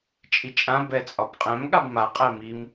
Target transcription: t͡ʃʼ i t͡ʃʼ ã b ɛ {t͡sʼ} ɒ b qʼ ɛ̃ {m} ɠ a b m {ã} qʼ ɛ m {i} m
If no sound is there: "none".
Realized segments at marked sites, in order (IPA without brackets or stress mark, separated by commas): t͡sʼ, m, a, i